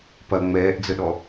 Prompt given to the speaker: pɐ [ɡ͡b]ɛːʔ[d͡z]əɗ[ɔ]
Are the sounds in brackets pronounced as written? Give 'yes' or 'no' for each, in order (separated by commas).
no, yes, yes